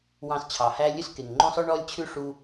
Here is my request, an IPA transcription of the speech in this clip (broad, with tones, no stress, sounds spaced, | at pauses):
w ɑ̃˧ s t͡ɕʰ ɑ˨ h æ˦ lʲ ɵ˦ s k e˨ ŋ ŋ͡ǃ õ˦ sˤ œ˦ ɳ ɔ˦ lʲ t͡ɕʰ ʉ˦ ʂ u˦